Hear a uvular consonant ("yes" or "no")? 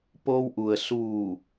no